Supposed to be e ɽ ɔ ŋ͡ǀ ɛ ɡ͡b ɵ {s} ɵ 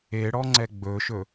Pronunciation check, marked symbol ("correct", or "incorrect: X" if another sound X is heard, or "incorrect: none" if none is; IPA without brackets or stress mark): incorrect: ʃ